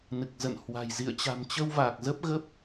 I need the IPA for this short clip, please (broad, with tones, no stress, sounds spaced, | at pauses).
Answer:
n ɨ˨˩ k̚ z ə̰˧˨ n h w a̤˨˩ j z ḭ˧˨ ə̯ t͡ɕ a̤˨˩ m t͡ɕ ə˧ w v aː˨˩ k̚ z ə˦˥ p̚ ɣ ə˦˥ p̚